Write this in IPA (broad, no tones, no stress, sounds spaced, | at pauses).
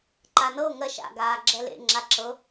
ǃ a n ɤ o̯ ŋ ɜ ʃ a̰ ɡ aː ɡ͡ǁ ɛ l ḛ ŋ͡ǁ a ǁ ɤ